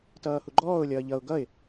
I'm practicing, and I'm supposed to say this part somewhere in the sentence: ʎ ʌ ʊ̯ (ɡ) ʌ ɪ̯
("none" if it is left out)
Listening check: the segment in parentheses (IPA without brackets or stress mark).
ɡ